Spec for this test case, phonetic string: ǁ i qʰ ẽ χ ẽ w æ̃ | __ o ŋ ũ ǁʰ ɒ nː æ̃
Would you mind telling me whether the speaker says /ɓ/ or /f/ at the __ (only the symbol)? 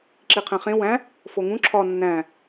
f